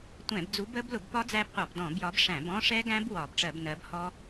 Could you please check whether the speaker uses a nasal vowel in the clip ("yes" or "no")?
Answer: yes